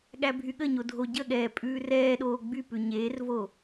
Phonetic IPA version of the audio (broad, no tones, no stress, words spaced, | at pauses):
ɠæbʱyɠəɲo dʱoɟəɠɛː pʼʉːrɛːɗoː ɡ͡bypʉ ɲeːrvo